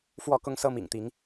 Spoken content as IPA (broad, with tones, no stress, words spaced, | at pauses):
fwɔ˥˨kʊ˦ŋ sɤ˦mḭ˨˩ŋt̪i˨˦ŋ